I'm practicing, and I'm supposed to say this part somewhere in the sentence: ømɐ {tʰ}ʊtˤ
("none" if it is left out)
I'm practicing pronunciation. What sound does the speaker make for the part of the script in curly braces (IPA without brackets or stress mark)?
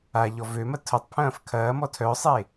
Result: tʰ